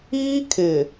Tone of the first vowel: high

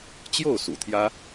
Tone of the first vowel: falling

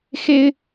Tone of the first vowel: high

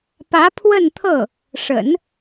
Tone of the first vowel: rising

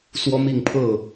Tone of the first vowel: high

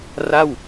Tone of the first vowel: falling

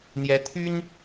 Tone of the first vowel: rising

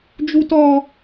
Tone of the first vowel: high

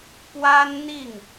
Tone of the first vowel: high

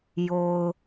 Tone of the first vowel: low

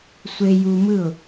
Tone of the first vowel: high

